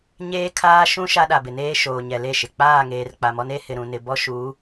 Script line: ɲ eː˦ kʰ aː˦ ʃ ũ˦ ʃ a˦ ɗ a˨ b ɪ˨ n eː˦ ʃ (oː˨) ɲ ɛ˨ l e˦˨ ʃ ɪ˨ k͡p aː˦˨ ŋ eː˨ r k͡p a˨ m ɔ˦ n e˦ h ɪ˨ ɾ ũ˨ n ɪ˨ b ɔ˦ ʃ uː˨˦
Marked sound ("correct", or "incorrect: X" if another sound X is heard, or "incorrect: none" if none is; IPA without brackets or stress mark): correct